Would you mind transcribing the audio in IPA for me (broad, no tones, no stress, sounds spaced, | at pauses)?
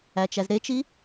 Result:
æ t͡ʃ æ z ɾ e t͡ʃ i